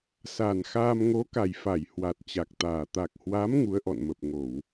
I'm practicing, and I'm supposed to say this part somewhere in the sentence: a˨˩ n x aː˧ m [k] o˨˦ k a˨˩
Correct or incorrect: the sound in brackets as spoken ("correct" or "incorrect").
incorrect